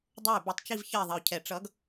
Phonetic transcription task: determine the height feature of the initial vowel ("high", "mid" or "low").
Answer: mid